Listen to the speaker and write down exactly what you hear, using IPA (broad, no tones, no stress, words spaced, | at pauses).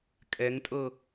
kʼɛŋtʼɤ